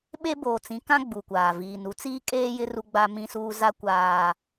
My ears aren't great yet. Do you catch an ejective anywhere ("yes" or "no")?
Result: yes